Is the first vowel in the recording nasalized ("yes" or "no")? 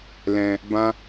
yes